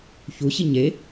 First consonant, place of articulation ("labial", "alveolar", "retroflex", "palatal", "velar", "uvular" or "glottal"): palatal